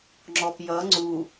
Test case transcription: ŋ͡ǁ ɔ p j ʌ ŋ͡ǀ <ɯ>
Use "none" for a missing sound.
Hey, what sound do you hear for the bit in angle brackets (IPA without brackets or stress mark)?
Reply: u